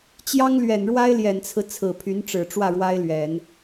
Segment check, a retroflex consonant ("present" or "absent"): present